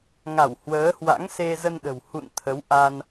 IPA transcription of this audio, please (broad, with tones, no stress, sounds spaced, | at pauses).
ŋ a˧˩ w h w əː˨˦ h w a̰˧˥ ŋ s e˧ z ə˧ n ɗ ə̤˨˩ w h ṵ˧˨ n t̪ʰ ə˨˦ w ʔ a˧ n